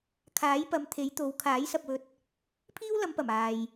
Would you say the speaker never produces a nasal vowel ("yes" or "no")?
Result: yes